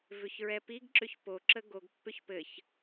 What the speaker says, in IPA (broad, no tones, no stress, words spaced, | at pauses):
vʏçɹɛpiɡǁʏç poǁə ɡoɡ pːʏçpɘç